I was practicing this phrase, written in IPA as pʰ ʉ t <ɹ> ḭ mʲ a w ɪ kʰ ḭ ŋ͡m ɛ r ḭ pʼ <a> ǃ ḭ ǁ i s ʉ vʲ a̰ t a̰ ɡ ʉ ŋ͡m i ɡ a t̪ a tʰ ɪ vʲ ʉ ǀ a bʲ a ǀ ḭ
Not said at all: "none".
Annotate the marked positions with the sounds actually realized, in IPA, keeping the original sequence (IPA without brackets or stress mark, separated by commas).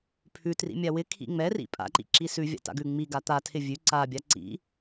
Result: r, a̰